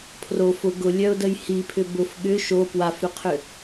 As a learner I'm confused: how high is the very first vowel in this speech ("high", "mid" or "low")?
mid